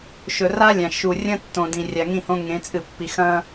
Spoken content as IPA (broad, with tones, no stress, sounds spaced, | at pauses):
ʃ ɵ˨ r a˦ lʲ ã˨ ʃ u˨ rʲ ɐ̃˦ tː õ˨ d ĩ˨ rʲ a˨ ŋ ĩ˦˨ h õ˦ ŋ ẽ˨˦ t͡sʼ ɨ˨ pː i˨ x ɐ̃˦